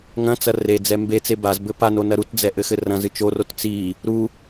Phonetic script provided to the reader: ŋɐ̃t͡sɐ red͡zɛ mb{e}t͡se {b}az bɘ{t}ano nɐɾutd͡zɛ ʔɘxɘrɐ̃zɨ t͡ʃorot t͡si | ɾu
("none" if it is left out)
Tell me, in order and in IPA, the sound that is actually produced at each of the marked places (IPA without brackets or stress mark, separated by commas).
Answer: e, b, p